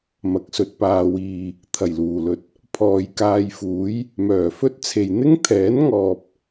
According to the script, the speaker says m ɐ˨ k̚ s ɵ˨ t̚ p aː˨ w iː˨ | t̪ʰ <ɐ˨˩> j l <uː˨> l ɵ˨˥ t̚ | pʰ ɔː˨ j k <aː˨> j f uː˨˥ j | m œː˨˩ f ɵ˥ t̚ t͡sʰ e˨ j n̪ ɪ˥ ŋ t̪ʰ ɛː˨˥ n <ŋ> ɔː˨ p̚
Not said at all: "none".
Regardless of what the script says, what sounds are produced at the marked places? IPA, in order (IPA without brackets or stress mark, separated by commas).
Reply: ɐ˨˩, uː˨˩, aː˧, ŋ